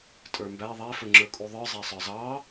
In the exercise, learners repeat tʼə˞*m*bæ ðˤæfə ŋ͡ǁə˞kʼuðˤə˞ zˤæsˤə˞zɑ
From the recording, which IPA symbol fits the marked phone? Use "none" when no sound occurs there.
m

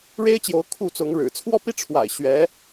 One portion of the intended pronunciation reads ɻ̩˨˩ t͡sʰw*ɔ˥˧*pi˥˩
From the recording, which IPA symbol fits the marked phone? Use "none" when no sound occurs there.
ɔ˥˧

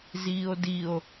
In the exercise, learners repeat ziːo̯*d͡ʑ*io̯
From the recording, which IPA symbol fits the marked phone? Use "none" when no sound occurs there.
d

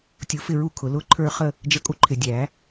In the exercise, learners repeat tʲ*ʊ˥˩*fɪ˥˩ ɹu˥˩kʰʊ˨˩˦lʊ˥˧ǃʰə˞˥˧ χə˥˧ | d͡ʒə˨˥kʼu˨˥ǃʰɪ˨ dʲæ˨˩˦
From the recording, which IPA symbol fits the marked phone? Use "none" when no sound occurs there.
ʊ˨˥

